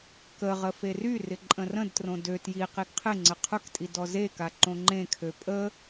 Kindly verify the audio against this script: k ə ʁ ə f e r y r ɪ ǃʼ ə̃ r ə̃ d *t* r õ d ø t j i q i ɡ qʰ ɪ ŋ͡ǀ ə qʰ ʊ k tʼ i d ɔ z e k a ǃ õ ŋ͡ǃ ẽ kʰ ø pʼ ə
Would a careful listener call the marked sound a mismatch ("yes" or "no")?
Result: no